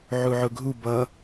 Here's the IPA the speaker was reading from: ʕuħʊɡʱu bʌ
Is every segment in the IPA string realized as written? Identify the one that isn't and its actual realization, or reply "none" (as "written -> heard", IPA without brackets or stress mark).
ħ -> ʕ